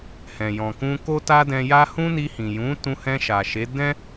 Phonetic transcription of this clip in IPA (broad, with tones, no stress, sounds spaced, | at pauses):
h ɛ̃˨ j ɔ̃˨ k ũ˧ k o˦ t a˦ d ɛ̃˧ j a˦ h ũ˦ n i˧ h ĩ˨ j ũ˨˦ t ũ˧ h ɛ̃˧ ʃ a˨ ʃ e˨˦ d ɛ̃˦